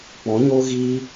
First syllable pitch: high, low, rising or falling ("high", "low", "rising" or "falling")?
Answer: rising